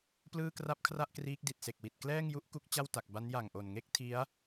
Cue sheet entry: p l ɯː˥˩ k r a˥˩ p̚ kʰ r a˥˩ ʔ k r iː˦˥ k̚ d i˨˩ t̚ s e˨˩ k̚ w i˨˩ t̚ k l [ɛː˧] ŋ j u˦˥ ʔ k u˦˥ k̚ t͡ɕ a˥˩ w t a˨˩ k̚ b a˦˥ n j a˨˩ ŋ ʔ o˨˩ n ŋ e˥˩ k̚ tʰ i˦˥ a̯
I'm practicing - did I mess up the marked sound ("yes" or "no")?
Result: yes